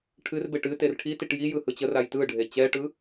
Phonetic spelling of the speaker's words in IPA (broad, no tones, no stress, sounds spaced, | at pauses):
ʈʰ ɨ r b e ʈ ɨ t e r ʈʰ i t i ʈ j i j ɯ h ɯ t͡ɕ ə r a j t ɯ ɖʱ e t͡ɕ ɛ ʈ ɯ